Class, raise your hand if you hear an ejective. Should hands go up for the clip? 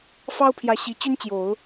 no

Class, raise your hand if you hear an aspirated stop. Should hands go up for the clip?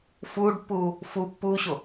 no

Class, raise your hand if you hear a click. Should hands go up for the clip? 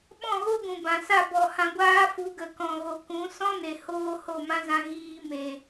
no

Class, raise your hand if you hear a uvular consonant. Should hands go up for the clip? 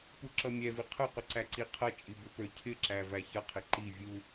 yes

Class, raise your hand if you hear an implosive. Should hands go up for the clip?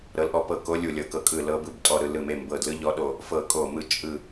yes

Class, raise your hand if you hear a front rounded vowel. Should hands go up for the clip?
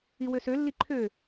yes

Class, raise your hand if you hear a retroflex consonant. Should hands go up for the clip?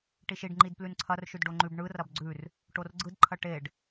yes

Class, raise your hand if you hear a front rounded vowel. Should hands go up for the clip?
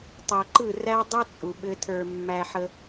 no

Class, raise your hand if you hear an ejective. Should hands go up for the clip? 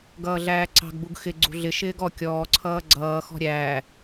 no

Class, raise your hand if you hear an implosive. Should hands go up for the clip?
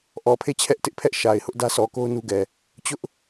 no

